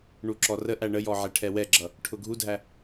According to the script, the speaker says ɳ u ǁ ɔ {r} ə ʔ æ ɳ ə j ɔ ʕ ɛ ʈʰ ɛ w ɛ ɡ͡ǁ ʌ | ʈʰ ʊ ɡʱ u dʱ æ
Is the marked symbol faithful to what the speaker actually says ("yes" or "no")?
yes